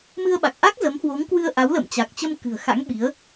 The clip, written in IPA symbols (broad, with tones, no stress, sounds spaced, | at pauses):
m ɨ˧ ə̯ ɓ a˨˩ k̚ ʔ a˦˥ k̚ z ə˨˦ m h w o˨˦ ŋ k w ɨ˧ ə̯ ʔ a˨˦ w l ə̰˧˨ m t͡ɕ a˨˩ k̚ t͡ɕ ə˧ m k ɨ̤˨˩ ə̯ x a̰˧˥ ŋ ɓ i˨˦ ə̯